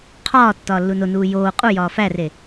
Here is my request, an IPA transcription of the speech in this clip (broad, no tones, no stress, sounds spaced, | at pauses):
qʰ ɒː tː ɒː lː u n o n uː j oː qʼ u j ɒː f æ r e